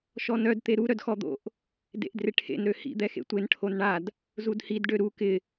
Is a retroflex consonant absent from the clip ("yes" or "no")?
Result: no